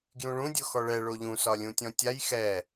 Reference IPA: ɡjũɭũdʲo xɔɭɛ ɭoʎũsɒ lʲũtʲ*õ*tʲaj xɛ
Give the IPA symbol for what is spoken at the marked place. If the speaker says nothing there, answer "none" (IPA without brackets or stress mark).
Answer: ɔ̃